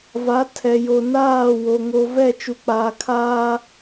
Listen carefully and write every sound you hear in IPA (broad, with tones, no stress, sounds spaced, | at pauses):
v a˨˦ tʰ ɛ˨ j o˨ n aː˦˨ w o˨ ŋ o˨ v ɛ˦˨ t͡ʃ u˨ k͡p aː˨ kʰ aː˦